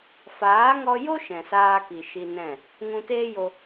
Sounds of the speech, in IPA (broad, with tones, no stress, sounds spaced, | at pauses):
f aː˨˦ ŋ ɔ˧ j o˦ ʃ ɛ̃˨ s aː˧ k i˨ ʃ i˧ n ɛ̃˦˨ | ŋ ũ˧ t eː˦ j o˧